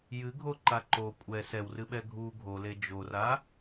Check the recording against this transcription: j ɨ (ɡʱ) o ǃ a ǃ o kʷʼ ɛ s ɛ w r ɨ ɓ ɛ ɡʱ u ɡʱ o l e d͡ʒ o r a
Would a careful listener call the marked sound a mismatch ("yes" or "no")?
no